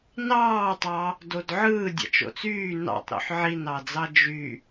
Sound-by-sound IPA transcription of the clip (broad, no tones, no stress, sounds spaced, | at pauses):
n ɑː tˤ ɑ | d o d ʕ ɯː dʲ ɑ̰ t͡ʃ o̰ t͡s yː n ɑ̰ tˤ ɾ o̰ ħ ʕ i n ɑ d͡z ɑ d͡ʒ y